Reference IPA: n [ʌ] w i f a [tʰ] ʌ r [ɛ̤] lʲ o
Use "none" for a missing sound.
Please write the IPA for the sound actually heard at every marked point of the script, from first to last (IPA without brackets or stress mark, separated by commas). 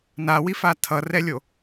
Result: a, tʰ, ɛ